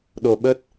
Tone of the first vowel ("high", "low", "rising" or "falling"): low